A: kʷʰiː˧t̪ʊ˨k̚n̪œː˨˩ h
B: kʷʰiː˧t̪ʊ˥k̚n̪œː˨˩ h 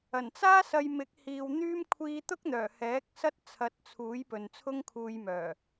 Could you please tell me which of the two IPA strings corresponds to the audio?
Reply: B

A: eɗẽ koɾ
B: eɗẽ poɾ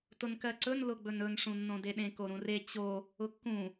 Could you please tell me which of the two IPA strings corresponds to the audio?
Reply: A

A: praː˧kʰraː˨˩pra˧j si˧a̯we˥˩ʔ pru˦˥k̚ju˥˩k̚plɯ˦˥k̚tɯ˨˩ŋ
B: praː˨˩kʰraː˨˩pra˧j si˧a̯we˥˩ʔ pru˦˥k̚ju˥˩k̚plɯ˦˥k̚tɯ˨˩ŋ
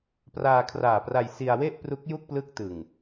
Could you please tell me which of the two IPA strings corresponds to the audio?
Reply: A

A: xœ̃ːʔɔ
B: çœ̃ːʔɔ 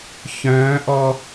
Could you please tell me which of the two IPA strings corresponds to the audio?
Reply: B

